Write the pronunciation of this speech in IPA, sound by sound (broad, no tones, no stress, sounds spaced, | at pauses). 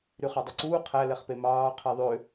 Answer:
ɾ y χ ɑ dˤ u ǀ uː qʰ æ l ɛ χ p e m ɑː qʰ i ðˤ ø